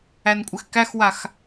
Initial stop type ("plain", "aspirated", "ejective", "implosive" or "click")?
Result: ejective